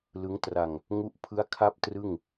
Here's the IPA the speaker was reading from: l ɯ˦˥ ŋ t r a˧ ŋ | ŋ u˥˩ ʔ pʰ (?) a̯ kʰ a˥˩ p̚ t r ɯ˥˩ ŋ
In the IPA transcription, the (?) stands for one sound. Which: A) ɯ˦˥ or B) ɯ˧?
A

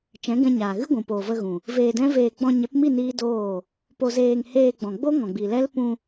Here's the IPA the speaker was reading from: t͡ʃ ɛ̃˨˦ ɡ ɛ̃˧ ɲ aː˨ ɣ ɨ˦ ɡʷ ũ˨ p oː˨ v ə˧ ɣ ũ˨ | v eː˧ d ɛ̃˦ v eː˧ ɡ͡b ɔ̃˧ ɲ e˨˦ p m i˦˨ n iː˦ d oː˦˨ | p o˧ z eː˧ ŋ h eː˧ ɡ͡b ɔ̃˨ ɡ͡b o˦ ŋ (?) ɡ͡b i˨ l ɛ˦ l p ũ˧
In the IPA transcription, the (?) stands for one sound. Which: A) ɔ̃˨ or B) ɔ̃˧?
A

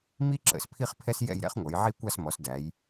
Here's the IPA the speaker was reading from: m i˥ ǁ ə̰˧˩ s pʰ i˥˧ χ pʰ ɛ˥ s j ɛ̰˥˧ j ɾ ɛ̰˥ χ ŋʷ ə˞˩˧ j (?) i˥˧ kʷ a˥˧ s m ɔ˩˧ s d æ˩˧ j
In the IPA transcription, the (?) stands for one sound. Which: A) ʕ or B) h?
A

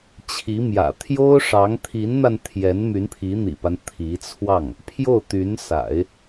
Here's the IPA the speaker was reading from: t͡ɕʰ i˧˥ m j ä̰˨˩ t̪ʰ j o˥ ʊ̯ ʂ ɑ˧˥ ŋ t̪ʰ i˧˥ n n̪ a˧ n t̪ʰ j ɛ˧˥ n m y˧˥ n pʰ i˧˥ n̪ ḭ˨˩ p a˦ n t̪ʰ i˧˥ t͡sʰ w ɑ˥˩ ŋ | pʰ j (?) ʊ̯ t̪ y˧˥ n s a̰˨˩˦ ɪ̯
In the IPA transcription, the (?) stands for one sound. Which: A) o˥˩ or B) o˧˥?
A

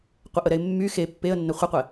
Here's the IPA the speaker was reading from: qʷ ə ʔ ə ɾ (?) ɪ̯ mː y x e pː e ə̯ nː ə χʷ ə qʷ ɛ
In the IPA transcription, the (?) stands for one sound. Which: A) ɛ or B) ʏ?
A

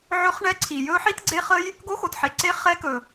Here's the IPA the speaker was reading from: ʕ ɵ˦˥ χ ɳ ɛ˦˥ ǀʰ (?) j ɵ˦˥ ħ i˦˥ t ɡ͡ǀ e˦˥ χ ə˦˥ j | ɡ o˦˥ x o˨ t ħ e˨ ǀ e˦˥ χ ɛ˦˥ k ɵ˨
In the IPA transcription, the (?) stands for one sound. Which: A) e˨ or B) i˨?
B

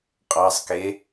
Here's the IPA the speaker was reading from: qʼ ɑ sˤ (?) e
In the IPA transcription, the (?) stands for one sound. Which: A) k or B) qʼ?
A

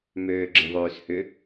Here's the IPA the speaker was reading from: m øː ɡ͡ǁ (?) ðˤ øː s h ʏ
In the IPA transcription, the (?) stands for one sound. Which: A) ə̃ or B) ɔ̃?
A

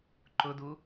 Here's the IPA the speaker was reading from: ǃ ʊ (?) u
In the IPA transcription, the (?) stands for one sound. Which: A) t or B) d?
B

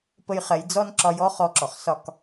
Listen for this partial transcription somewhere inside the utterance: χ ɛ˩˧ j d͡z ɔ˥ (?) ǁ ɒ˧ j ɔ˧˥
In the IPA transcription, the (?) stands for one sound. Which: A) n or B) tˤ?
A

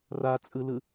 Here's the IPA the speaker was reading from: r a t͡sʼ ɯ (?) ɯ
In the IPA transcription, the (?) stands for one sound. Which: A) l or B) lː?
A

